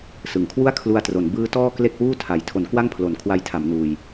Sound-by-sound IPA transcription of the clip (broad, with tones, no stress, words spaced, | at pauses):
sɯ˨˩ŋkʰwu˥˩a̯ kʰlu˧a̯tro˩˦n bɯː˦˥tɔː˥˩ kle˥˩k̚wuː˥˩tʰa˩˦j tʰo˩˦n kwa˥˩ŋpʰlo˨˩n kʰwa˧jtʰa˩˦m nuː˧j